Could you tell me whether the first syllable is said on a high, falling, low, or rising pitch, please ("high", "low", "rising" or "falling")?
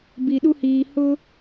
low